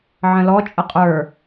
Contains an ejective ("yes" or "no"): yes